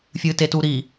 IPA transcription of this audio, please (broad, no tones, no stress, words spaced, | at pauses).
fʲɨtetuɾi